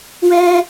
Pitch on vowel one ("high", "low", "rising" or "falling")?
high